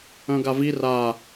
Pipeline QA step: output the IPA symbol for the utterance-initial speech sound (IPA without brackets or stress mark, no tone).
œ̃